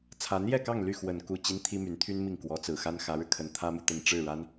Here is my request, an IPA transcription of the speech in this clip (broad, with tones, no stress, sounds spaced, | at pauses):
t͡sʰ a˧˥ n j ɛ˥˧ k ɑ˥˧ ŋ l y˥˩ x w ə˨˩ n k u˥˩ t͡ɕ i˥ n t̪ʰ i˥ m y˧˥ n t̪ʰ y˥ n m i˥˩ ŋ k w ɔ˧˥ t͡s ɹ̩˨˩ x a˥ n x ä˧˥ ɻ ɻ̩˧ kʰ ə˧˥ n t̪ʰ ä˥ m u˨ t̪ ə˥˧ n ʈ͡ʂ ɻ̩˥˩ ɻ a˥ n